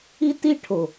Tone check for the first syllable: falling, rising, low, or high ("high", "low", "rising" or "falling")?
high